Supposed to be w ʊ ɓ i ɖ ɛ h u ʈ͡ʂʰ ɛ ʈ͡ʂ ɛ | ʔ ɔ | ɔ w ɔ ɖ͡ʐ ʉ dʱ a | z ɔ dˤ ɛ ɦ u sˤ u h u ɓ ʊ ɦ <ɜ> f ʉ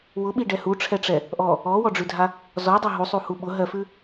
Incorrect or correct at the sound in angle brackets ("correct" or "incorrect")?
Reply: correct